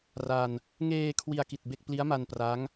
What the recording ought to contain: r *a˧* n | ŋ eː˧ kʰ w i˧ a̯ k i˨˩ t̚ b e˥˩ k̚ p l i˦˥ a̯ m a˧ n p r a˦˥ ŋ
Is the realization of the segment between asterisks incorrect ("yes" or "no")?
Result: no